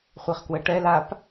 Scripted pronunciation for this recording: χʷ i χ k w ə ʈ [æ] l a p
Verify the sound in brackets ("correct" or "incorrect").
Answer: incorrect